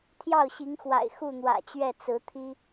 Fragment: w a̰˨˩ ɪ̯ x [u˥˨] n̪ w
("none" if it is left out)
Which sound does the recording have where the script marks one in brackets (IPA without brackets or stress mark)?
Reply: u˥˨